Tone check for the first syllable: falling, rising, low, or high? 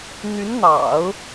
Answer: rising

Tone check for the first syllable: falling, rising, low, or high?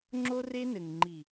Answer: high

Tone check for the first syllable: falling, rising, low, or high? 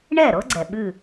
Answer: falling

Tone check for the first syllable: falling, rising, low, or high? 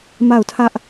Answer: falling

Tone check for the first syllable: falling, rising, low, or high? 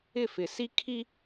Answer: falling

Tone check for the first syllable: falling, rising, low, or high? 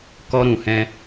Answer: high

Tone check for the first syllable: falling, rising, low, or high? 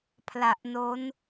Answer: low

